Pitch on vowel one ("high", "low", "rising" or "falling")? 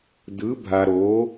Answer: rising